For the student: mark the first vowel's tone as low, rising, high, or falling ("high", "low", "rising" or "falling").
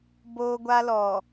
high